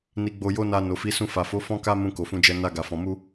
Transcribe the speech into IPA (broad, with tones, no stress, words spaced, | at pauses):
ni˧ɡ͡bo˧jo˦na˧ no˨fi˨˦sũ˧ fa˨fo˨˦ fɔ̃˦ka˦ mũ˧ko˨fũ˧d͡ʒɛ˧ na˧ ɡa˨fɔ̃˨ mu˧